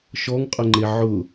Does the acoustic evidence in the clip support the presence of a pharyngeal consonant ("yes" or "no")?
yes